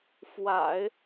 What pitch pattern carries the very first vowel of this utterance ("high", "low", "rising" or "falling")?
low